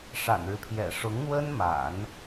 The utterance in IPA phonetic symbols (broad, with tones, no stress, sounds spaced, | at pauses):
ʂ a̰˨˩ n ɻ ɻ̩˦ pʰ j ɛ̰˨˩ ʂ ʊ˧˥ ŋ n̪ w ə˥ n m a̰˨˩˦ n